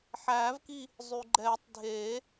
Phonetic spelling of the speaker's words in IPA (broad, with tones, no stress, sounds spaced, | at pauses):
ħ æː˨˩˦ v k i˦˨ | zˤ ʉ˩ ɡ͡ǃ ɛː˨˩˦ tˤ dʱ eː˨˩˦